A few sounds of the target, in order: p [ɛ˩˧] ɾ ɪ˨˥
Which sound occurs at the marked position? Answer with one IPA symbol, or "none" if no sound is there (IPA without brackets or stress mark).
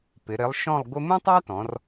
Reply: ɪ˩˧